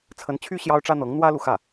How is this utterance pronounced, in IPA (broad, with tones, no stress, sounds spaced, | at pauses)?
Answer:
t͡sʰ ə˧˥ n t͡ɕʰ y˥ ɕ j ɑ˥ ʊ̯ ʈ͡ʂ ä˥ n̪ ɤ˧˥ ŋ n̪ w ä˥ l u˨ x ä˥˩